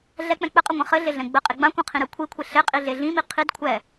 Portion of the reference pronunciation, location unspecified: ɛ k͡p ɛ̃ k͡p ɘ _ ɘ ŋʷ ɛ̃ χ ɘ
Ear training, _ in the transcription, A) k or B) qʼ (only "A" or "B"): B